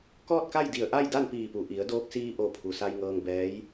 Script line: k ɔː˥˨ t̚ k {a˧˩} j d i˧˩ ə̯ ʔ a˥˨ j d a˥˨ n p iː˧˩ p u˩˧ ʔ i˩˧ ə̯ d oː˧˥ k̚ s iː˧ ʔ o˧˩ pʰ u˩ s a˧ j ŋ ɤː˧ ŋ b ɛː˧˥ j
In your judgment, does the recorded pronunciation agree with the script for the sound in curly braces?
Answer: no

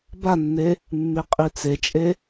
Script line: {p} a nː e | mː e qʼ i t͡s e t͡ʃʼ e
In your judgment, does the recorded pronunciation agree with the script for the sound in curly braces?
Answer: no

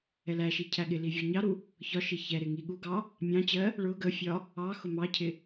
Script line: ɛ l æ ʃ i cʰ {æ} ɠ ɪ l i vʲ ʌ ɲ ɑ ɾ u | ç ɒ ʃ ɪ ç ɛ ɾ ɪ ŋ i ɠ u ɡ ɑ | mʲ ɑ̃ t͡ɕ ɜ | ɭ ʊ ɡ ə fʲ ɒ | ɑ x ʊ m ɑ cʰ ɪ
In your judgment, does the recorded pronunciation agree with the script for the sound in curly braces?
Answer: yes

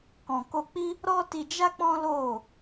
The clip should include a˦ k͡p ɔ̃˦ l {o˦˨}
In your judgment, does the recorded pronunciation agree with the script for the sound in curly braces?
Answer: yes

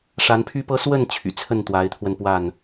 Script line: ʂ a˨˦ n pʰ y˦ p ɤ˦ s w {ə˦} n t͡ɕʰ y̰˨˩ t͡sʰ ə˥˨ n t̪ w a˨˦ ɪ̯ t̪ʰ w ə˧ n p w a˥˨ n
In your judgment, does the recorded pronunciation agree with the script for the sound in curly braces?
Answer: no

